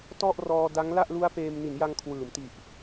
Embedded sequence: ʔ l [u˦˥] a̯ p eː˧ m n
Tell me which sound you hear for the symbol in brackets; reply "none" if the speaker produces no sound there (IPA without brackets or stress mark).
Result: u˦˥